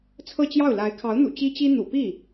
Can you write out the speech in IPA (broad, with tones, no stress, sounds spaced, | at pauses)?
t͡sʰ ɤ˥˧ t͡ɕ j ɑ˥˩ ʊ̯ l a˧˥ ɪ̯ kʰ ɑ˧˥ ʊ̯ n̪ ṵ˨˩ t͡ɕ i˥ t͡ɕ i˥ n̪ ṵ˨˩ p i˥˩